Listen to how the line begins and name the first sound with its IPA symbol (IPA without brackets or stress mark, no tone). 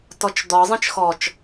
t